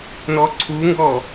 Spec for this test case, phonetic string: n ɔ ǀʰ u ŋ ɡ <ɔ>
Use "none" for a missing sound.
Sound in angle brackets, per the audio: ɔ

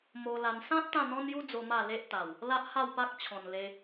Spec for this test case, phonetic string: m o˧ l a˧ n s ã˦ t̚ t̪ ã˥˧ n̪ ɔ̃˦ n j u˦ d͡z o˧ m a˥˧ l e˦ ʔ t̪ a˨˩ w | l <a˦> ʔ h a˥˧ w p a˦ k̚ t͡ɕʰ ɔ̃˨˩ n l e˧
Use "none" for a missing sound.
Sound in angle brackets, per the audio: a˦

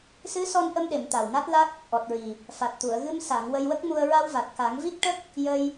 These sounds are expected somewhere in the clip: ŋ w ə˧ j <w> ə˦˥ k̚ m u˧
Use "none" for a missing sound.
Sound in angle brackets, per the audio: w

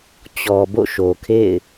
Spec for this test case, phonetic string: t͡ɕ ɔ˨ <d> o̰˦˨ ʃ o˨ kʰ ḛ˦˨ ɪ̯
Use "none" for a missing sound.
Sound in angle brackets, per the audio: b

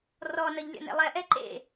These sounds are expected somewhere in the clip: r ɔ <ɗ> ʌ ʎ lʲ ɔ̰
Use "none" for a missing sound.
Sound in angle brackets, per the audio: n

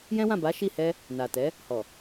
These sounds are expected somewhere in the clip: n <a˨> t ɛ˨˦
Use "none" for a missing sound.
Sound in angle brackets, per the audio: a˨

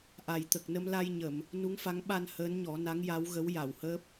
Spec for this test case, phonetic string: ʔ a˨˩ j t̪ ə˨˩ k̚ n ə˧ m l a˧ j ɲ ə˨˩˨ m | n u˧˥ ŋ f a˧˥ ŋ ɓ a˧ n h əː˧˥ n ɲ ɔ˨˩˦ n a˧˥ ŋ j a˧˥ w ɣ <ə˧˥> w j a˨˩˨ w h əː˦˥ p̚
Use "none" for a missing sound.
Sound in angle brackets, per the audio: ə˧˥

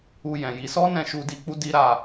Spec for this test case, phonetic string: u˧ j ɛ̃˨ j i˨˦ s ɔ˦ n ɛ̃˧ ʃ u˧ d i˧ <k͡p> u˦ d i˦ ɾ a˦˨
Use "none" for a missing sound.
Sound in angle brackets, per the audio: k͡p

